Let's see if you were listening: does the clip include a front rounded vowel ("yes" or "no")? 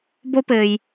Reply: no